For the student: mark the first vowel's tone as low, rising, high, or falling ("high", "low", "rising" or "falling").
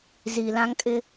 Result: low